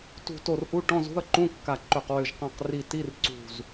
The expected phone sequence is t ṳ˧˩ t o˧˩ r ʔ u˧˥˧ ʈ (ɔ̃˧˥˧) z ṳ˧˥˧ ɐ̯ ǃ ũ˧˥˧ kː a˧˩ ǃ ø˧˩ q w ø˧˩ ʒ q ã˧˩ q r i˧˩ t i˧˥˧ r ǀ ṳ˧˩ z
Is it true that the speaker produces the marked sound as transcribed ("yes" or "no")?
yes